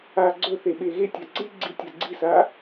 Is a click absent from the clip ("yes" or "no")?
no